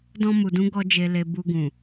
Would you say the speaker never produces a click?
yes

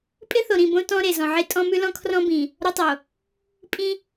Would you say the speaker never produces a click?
yes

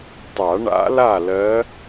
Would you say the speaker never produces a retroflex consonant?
no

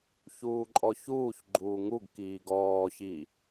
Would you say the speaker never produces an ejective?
no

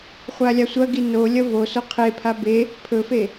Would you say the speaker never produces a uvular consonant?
no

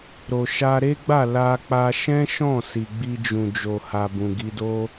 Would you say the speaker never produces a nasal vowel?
no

